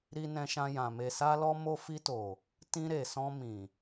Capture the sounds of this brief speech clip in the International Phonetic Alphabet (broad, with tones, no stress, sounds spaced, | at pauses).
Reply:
ɾ i˧ n ɛ̃˧ ʃ ã˧ j ã˨ m e˨ s a˧ l ɔ˧ m o˧ f i˧ t o˨ | t ĩ˧ ɾ e˨ s ɔ̃˧ m ĩ˨